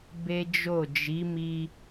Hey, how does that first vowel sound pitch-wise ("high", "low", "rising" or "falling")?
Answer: high